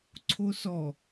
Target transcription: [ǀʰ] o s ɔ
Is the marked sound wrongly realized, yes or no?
no